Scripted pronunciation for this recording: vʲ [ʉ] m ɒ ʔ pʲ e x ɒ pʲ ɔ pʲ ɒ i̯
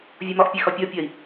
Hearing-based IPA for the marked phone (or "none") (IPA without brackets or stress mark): u